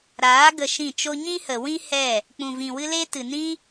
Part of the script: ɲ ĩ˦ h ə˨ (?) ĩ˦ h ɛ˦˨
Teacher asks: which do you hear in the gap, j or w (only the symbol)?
w